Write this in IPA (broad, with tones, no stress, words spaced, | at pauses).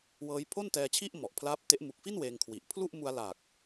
wɤː˦˥j pʰo˥˩ntɛː˧t͡ɕʰi˥˩ʔ mɔ˨˩ʔpʰlaː˦˥p̚te˦˥ʔ mu˨˩k̚fi˥˩n weː˧ŋkʰwi˨˩ʔ pʰlu˥˩ʔmu˧a̯la˨˩k̚